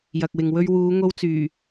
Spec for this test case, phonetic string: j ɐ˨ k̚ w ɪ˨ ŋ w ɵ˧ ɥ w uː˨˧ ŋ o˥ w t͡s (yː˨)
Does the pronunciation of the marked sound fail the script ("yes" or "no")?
yes